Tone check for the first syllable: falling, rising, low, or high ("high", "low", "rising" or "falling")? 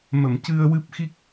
low